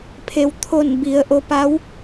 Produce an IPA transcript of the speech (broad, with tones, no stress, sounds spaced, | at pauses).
pʰ e˩ w t̪ʰ o˧˩ n b i˩˧ ə̯ ʔ o˧ p a˧˥ w